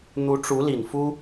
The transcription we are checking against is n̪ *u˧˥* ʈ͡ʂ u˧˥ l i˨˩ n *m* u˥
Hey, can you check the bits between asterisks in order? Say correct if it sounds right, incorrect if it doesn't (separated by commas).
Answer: correct, incorrect